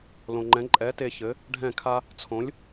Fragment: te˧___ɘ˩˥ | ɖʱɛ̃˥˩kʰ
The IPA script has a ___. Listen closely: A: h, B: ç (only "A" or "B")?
B